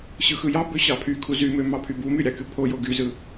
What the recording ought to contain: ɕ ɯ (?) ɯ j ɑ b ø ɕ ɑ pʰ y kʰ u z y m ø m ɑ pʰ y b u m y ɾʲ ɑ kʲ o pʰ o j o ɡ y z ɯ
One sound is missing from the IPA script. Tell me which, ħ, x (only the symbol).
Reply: x